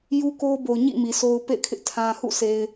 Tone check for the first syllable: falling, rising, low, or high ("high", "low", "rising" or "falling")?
high